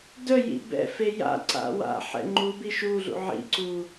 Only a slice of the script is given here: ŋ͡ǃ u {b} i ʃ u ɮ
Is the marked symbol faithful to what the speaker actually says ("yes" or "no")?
yes